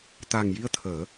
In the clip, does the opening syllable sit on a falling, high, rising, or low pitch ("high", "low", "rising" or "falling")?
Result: low